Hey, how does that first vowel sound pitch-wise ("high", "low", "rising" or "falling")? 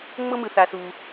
high